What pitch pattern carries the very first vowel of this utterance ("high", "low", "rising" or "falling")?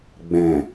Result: low